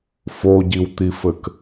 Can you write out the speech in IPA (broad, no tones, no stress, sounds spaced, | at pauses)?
f o ɟ i w t̪ i f ɘ k